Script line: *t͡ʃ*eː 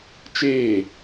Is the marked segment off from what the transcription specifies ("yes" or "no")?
no